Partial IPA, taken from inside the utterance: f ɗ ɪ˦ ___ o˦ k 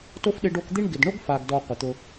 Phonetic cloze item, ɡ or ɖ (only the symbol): ɖ